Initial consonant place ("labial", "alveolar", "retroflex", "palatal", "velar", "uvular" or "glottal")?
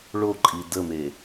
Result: retroflex